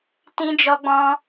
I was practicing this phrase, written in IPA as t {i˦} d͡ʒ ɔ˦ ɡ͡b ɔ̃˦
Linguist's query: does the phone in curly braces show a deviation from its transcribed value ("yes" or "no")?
yes